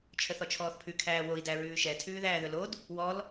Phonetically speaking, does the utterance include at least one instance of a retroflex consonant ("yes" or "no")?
no